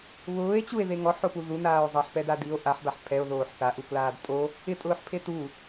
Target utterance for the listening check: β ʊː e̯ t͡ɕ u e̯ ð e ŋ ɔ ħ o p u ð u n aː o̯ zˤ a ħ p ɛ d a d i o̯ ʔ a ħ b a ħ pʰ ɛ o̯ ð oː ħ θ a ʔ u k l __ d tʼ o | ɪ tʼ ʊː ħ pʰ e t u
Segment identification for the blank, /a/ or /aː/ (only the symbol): aː